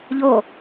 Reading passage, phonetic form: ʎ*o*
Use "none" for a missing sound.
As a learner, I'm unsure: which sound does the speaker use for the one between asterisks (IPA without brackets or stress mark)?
o